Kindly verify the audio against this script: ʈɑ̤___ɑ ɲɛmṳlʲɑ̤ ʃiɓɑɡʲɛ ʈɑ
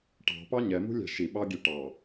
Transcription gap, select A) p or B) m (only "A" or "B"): A